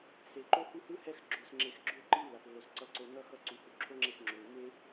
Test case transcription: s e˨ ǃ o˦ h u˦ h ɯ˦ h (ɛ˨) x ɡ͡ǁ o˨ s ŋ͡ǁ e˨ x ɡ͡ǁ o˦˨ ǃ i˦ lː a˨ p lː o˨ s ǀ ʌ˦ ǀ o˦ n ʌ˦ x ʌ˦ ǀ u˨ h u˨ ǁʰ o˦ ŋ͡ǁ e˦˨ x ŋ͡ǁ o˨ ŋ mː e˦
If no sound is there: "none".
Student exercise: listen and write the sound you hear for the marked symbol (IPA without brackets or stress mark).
ɛ˦˨